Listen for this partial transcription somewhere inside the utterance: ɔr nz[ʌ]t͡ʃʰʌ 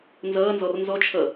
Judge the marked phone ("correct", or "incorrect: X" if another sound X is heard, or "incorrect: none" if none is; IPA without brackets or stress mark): incorrect: ɔ